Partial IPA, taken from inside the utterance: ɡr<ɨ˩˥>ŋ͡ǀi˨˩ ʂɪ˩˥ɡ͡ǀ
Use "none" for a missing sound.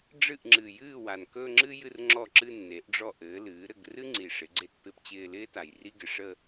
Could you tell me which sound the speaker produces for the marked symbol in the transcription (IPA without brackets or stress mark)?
ɨ˥